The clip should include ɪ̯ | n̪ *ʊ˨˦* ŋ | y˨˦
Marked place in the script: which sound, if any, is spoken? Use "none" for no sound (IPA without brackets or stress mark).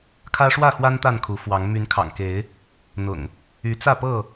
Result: ʊ̰˨˩